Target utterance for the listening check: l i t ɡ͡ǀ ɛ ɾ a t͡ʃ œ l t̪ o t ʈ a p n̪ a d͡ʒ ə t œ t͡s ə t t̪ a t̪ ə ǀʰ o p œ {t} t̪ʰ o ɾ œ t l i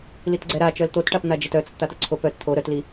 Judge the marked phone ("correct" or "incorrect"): correct